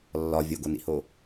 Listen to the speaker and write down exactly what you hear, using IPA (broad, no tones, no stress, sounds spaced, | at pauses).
lː ɒ vʲ o ɡ o n ḭ h o